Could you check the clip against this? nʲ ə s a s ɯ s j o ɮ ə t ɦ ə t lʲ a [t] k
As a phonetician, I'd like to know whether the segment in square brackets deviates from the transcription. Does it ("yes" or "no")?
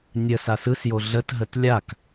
yes